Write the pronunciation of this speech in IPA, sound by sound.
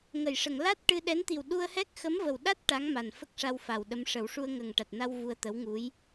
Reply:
ŋ ə˨˩˨ j ʂ ə˨˩˨ ŋ l a˦˥ t̚ ʈ ɨ˧ ɗ ɛ˧˥ n t̪ i˨˩ w ɗ u˧ ə̯ h ɛ˦˥ k̚ x ə˧˥ m v ə˨˩ w ɗ a˦˥ t̚ ʈ a˧˥ ŋ m a˨˩ n f ə˦˥ k̚ ʂ a˧ w f a˨˩ w ɗ ə˧˥ m ʂ ə˨˩˦ w ʂ u˧ ə̯ ŋ ə˨˩ ŋ ʈ a˨˩ t̚ n a˧ w v u˧ ə̯ t̪ ə˧˥ w ŋ u˧˥ j

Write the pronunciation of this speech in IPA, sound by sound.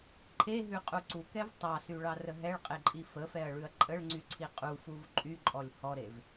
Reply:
ǃʰ e ɦ ʉ qʼ u ǀ u k ɛ v tˤ ɑ s y ɭ ɑ r ə ɦ ɛ ɭ qʼ e ǃʼ i f ə f ɛ ɐ̯ ɭ ʉ ɐ̯ ǃʼ ə ɭ ŋ͡ǀ y ǀʰ i qʼ u f u v ǃʼ y ǃʼ ɔ lʲ h ɔ ɾ e v

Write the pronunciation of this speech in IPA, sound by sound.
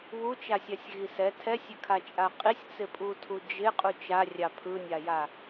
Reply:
β u t͡ʃ a sʲ a sʲ ɣ i s ɛ tʰ ɛ sʲ ɪ kʰ a t͡ʃʼ a qʼ i sʲ t͡s ɪ pʼ u tʰ u d͡ʒ ɪ qʼ u t͡ʃ a rʲ ɑ pʰ ɯ nʲ a j a

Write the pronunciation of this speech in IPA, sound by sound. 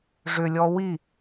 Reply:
ʐ ʏ lʲ ɔ w i

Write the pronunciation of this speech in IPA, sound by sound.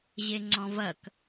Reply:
ʑ e ŋ͡ǀ ɔ̃ v ɐ k

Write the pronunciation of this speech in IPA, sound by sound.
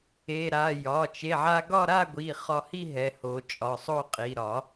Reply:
e˩˧˩ ɾ a˩˧˩ j ɒ˩˧˩ t͡ʃ e˩˧˩ ʕ a˧ ɡ ɒ˥˧ ɾ a˥˧ ɡʷ i˩˧˩ χ ɒ˧ h i˥˧ ɦ ɛ˩˧˩ h o˨˩˦ t͡ʃʼ ɒ˩˧˩ sˤ o˥˧ qʼ i˩˧˩ ɾ ɒ˨˩˦

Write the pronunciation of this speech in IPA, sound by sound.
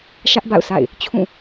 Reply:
ʃ ä˦ ʔ b a̰˦˨ ʊ̯ s a̰˦˨ ɪ̯ | t͡ɕʰ ũ˦˨

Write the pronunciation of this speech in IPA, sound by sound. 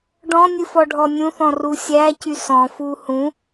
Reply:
ɖ ɔ̃ nʲ ɨ f ɔ ɖʱ ɔ nʲ ũ θ ɔ̃ r u sʲ æ c y s ɔ̃ f u h ũ

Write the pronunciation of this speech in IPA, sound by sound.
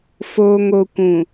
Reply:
f oː˨ ŋ o˨ kʷ ũ˨

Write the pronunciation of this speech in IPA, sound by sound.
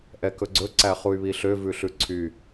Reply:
ʔ ɛ k ɵ ɡ͡ǀ ɵ ǀ æ χ u y̯ β i ɬ ø v ʉ ɬ ʉ ǀʰ y

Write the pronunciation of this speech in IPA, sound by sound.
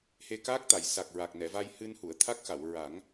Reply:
h e˧ k aː˦˥ k̚ t̪ a˨˩˨ j s a˨˩ k̚ ɹ a˨˩ k̚ n ɛ˨˩˨ v a˧ j h ɨ˧ n h u˨˩˨ ə̯ t̪ʰ a˦˥ k̚ x a˨˩˨ w ɹ a˨˩˦ ŋ

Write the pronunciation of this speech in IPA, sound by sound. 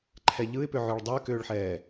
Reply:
ǃʰ ɛ ʎ ɯ ɪ̯ p ʏ ʕ ø ɭ dˤ ʏː k ʏː ɭ ħ ɛː

